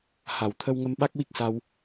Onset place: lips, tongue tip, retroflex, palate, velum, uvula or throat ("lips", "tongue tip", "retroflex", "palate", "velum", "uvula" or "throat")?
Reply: throat